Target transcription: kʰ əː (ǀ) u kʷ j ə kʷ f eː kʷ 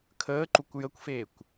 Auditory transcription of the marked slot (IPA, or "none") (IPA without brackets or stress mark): ǃ